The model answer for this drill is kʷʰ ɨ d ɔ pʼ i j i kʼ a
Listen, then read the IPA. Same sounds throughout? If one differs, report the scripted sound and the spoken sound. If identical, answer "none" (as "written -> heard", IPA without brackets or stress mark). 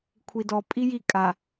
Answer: ɨ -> i